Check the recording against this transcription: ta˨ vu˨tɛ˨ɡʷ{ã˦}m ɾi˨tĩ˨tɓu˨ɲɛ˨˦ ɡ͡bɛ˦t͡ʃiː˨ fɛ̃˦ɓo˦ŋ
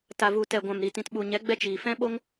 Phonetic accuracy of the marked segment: incorrect: ã˨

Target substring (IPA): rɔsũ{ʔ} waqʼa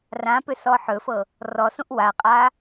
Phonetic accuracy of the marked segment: correct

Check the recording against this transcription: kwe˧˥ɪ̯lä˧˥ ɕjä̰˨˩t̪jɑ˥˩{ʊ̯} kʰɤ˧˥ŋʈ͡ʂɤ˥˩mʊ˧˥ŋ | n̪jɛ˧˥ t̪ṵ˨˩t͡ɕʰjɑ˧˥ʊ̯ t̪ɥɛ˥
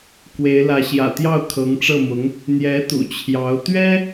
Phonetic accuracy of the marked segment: correct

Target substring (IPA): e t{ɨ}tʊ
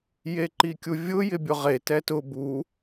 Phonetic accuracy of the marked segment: incorrect: ɛ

